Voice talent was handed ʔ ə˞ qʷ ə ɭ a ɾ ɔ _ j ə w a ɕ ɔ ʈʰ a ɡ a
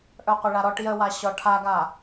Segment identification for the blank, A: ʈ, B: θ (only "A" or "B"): A